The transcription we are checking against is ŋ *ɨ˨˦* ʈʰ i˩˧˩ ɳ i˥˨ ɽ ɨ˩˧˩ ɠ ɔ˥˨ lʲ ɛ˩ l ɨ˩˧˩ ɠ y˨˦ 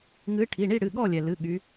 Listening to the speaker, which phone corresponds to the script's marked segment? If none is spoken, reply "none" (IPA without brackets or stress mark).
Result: ɨ˨˦